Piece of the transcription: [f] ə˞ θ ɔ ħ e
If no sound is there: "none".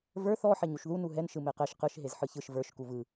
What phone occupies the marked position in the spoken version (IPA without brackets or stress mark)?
v